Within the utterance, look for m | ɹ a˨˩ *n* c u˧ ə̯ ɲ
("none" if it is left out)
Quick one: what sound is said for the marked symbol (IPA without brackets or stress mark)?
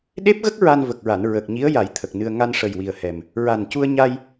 n